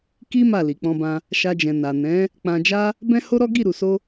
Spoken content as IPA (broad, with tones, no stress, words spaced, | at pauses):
ki˦ ma˦˨ li˨k͡pɔ̃˧bã˧ | ʃa˧d͡ʒɛ̃˨ na˨ nɛ̃˨˦ | k͡pã˧d͡ʒa˦ | bɛ̃˦ ho˦ɾɔ˦ ɡi˦˨ɾu˨so˧